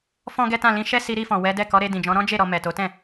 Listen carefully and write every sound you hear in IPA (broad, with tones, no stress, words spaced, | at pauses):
fɔ̃˦ɡɛ˦tã˦˨ lĩ˧ʃɛ˦si˧ ɾi˧fɔ̃˨ wɛ˨˦dɛ˦˨ kɔ˨˦ɾe˧dĩ˨d͡ʒɔ̃˨˦ ɾɔ̃˦d͡ʒe˦˨ ɾɔ˧mɛ˨to˨˦ tɛ̃˦˨